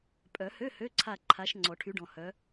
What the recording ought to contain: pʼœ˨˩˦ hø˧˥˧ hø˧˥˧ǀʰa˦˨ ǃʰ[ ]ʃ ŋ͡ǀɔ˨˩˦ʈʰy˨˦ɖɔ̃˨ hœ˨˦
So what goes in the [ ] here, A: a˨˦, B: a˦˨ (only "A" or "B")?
A